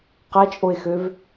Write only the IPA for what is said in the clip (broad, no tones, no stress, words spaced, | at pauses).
qæt͡ʃʼoe̯xøv